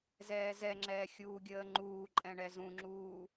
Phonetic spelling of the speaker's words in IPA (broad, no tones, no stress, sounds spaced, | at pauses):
z ɛː z ɛ ŋ͡ǁ ɛː xʲ uː ɡʲ əː ŋ͡ǃ uː ǃʼ ɛ̃ ɳ ɛ z ũ ŋ͡ǁ uː